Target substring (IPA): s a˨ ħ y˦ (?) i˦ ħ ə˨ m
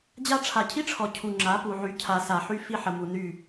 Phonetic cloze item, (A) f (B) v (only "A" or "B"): A